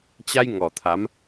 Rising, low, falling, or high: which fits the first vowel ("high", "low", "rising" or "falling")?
high